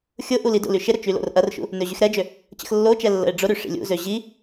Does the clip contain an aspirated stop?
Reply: no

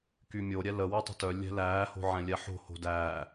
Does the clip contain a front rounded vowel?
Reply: yes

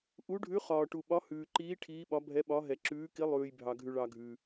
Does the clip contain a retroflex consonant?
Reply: yes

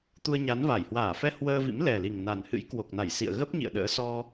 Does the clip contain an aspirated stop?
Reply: no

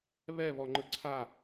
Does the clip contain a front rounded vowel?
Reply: no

